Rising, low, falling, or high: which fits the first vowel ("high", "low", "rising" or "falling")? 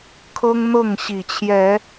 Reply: high